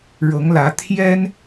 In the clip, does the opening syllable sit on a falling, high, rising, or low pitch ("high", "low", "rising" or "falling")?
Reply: rising